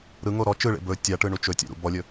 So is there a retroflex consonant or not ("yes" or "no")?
yes